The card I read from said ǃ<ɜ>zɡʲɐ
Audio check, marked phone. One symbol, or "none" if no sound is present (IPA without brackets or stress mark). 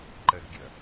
ɜ